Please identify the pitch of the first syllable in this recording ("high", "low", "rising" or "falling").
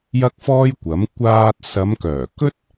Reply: high